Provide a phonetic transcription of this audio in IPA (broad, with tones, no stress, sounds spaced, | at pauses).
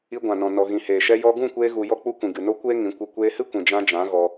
i˧ ɡʷ ã˨ n ɔ̃˨ n ɔ˨ ɣ ĩ˨ h eː˨ ʃ ɛ˧ j ɔ˧ ɡ ũ˦˨ kʷ eː˧ ɣ u˨ j ɔ˧ k͡p u˧ kʷ ĩ˨ ɡ ɨ˨ n o˦ kʷ eː˦ ŋ ĩ˨˦ kʷ i˧ kʷ eː˧ h ɨ˦ kʷ ĩ˨ d͡ʒ ã˧ d͡ʒ ã˨˦ ɣ ɔ˧